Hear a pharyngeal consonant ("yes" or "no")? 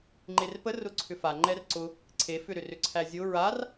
no